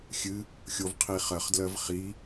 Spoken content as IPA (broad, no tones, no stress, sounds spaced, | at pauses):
xʲ ɨ | xʲ o v qʰ i χ ɜ χ d l ɜ v χ i